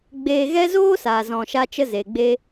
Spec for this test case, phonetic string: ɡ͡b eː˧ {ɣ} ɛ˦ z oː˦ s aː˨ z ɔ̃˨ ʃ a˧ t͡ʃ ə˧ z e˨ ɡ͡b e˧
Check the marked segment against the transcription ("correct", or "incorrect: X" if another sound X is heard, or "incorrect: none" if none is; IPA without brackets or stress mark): correct